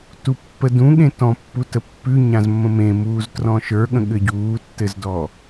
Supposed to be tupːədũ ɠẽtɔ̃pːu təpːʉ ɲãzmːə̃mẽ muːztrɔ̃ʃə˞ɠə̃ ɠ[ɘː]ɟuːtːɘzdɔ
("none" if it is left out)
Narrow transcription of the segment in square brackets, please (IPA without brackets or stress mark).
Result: ɘ